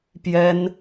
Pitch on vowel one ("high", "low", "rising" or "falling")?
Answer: high